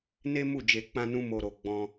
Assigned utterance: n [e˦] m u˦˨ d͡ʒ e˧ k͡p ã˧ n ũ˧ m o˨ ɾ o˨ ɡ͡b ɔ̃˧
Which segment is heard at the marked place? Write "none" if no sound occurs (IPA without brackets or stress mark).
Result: e˦